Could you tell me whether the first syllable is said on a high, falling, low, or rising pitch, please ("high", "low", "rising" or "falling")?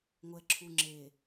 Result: low